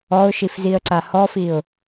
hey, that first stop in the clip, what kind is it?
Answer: click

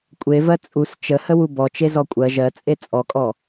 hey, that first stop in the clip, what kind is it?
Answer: ejective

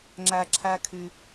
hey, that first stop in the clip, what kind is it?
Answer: click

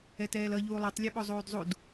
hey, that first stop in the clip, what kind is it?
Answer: plain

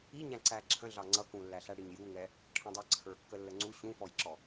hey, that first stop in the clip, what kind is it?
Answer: click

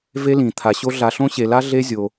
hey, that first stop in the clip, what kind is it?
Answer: aspirated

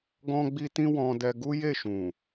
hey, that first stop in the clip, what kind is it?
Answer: plain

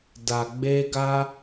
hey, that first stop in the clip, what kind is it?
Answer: plain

